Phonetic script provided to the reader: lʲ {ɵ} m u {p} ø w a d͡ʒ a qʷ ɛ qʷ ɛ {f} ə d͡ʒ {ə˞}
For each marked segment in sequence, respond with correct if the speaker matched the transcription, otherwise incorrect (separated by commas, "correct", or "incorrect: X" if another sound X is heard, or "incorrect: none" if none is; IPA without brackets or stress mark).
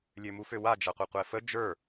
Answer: incorrect: ø, incorrect: f, correct, correct